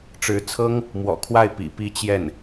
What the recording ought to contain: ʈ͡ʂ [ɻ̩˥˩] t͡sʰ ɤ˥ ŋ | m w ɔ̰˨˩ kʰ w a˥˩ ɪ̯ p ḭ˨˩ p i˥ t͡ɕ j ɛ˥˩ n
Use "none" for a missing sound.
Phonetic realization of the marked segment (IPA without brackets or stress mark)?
ɻ̩˧˥